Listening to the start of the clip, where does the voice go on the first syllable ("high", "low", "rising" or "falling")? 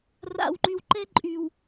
low